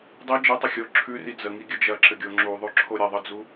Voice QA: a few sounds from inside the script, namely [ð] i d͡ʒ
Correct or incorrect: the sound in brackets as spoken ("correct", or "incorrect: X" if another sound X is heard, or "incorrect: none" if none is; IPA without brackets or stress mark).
incorrect: dˤ